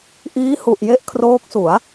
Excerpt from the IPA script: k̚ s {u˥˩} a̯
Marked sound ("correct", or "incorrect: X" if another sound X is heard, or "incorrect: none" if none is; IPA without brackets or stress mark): incorrect: u˩˦